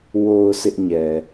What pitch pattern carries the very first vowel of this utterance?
low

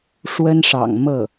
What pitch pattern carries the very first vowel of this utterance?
high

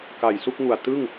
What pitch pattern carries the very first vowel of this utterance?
low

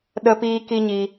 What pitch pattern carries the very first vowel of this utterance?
high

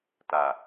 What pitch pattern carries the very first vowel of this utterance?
low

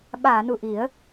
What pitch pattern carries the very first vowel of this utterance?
low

